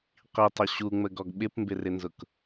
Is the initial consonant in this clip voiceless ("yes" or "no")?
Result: yes